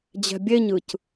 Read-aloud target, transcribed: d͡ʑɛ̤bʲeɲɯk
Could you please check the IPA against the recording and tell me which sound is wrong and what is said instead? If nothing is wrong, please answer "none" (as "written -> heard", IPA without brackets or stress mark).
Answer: k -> c